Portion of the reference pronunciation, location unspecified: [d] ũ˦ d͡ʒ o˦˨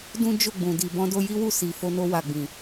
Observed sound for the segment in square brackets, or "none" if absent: d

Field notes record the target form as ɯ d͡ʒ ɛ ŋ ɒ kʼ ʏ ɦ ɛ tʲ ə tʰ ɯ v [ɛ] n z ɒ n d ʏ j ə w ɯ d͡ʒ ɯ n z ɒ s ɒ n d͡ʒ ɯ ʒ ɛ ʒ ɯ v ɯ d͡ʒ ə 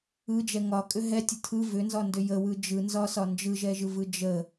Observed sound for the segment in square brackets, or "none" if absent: ʏ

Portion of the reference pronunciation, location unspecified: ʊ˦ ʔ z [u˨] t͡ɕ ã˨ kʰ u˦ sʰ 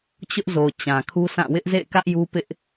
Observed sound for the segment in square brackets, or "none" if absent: o˨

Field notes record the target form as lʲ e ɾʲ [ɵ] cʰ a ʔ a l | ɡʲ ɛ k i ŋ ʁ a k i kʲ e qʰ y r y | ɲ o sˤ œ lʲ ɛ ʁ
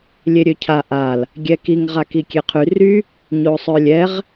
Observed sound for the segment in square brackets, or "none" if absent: ø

